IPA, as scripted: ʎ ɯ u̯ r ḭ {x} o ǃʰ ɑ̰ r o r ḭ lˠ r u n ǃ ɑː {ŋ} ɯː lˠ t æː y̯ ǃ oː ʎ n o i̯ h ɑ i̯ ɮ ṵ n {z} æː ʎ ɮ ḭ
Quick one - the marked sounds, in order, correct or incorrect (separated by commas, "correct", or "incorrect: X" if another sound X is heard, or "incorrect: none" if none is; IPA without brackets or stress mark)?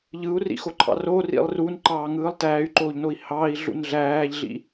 correct, correct, incorrect: ɮ